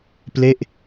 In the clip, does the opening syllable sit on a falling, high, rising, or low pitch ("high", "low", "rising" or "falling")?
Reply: falling